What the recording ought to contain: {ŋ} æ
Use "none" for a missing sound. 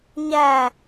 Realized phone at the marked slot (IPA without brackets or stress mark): ɲ